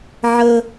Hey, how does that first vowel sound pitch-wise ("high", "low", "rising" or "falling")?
high